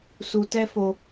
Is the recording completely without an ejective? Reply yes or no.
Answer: yes